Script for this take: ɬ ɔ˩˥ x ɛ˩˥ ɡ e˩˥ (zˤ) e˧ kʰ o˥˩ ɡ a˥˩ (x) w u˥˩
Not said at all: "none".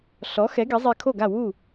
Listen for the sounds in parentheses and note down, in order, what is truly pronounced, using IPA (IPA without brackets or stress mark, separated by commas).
zˤ, none